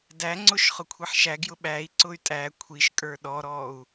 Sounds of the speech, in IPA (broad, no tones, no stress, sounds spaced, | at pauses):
d æ ŋ͡ǀ ʊ ʃ χ ʊ kʷʰ i ħ ʃ æ ɡ j ʊ ɓ æ i̯ ǀ ʊ y̯ tʼ æ kʷʰ i ʃ kʼ ə˞ ɗ ɔ ɾ ɔ u̯